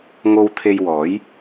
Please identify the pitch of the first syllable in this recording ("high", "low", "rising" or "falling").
low